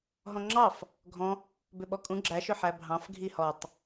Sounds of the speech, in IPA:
ɦ ɔ̃ ŋ͡ǁ ɑ f | ɡʱ ɔ̃ | b ʏ ɓ ɔ kʼ ũ ɡ͡ǁ æ ʃ ʏ ħ æ bʱ ɑ̃ f ɡʱ i h ɔ tˤ

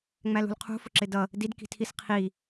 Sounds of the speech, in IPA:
ŋ͡m æ l ṳ l qʰ ṳ f ʊ ǁ ɪ d ʌ | d i d k i̤ tʰ i s qʰ i

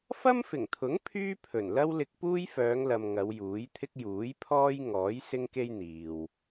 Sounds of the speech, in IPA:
f ɐ˥ m f ɪ˨˩ ŋ t̪ʰ ʊ˨˥ ŋ pʰ yː˥ pʰ ɵ˨˩ n l ɐ˥ w l ɪ˧ k̚ p uː˥ j f œː˨˧ ŋ l ɐ˨ m ŋ ɐ˨˧ w j uː˨˥ j t̪ʰ ɪ˥ k̚ j uː˨˥ j pʰ ɔː˥ j ŋ ɔː˨˥ j s ɪ˥ ŋ k e˥ j n̪ iː˨ w

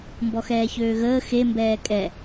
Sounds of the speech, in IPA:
m b ɔ x ɛː ç øː ɣ əː x e m b ɛː kʼ ɛ

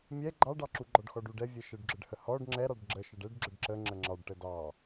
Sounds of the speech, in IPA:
mʲ ɛ ɡ͡ǃ ɑ ɖ ɑ ǁ u ɡ͡ǃ ɔ ɖ x ɔ ɖ u ɖ ɛ vʲ ɛ ʃ ə ɖ ɡ͡ǁ ə ɖ h ə h ɔ ɖ ŋ͡ǁ ɛ ɾ ɑ ɖ ɡ͡ǁ ə ʃ ə ɖ ɛ ɖ ɡ͡ǁ ə ɖ ǁ ə ŋ͡ǁ ə ŋ͡ǁ ɑ ɖ ʈ ə d ɑ

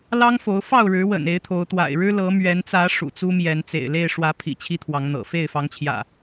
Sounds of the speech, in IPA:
l ɑ˦ ŋ f o˨˦ ʊ̯ f ɑ˥˨ ʊ̯ ɻ ɻ̩˨˦ w ə̰˨˩ n e˨˦ ɪ̯ t̪ʰ o˨˦ ʊ̯ t̪ w a̰˨˩ ɪ̯ ɻ ɻ̩˦ l ɤ˨˦ m ɥ ɛ˨˦ n t͡s ä˨˦ ʂ ṵ˨˩ t͡s u˦ m j ɛ˨˦ n t͡s ḛ˨˩ ɪ̯ l e˥˨ ɪ̯ ʂ w ä˨˦ pʰ ḭ˨˩ t͡ɕʰ i˦ t̪ʰ w ɑ˨˦ ŋ n̪ ɤ̰˨˩ f e˥˨ ɪ̯ f ɑ˨˦ ŋ t͡ɕʰ j ä̰˨˩

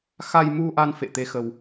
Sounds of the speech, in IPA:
x a˧ j m u˧ ʔ a˧ n f ḛ˧˨ t̪ e˨˦ x ə˧ w

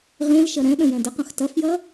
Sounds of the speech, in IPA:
ʁ ẽ l ʃ ɐ ɾ ɛ̃ ɗ ə̃ j ɛ̃ d ə q ɐ̃ x t ɐ f j ɐ

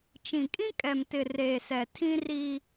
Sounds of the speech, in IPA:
t͡ʃ ĩ˨ kʼ ĩ˦ kʼ ɛ˨ m t ɪ˨ r eː˨ s ɛ˨ tʰ ĩ˦ r i˦

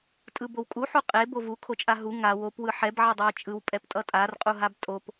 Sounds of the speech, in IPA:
tʼ ɯ b o w kʼ u ħ u qʼ e b o v u kʰ o t͡ʃʼ a ɦ u ŋ a w o p w ɯ ħ ɛ b ʕ ɛ dˤ ɛ j t͡ʃʼ ɯ w pʼ ɛ p tʼ ʌ tʼ a r qʼ u ɦ a b tʼ o p

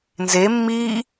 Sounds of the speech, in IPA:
n z e mː iː

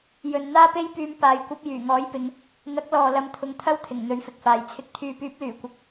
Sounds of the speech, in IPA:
j ɵ˨ n n̪ aː˥ p e˥ j p yː˧ m p aː˨ j kʷ ɐ˧ p̚ j yː˨˩ ŋ ɔː˨˥ j p ɪ˨˧ ŋ | n̪ ɐ˨˥ k̚ l ɔː˨ l ɐ˨˧ m t̪ʰ ʊ˨˧ ŋ t̪ʰ ɐ˥ w t̪ʰ ɪ˨˩ ŋ n̪ ɵ˨˥ ɥ f ɪ˨ k̚ f aː˨ j t͡sʰ ɪ˨˥ k̚ t̪ʰ yː˨ p yː˨˥ p̚ l yː˨˩ kʷ ɪ˨˥ k̚

